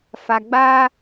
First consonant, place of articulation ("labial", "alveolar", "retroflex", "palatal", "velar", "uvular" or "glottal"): labial